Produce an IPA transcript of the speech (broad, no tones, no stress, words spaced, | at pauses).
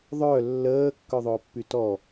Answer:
ðˤœ lːəː kːœðˤʊːpːytɔ